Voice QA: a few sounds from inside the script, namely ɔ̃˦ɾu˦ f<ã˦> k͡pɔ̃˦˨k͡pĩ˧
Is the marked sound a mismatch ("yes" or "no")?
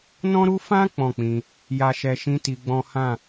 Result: no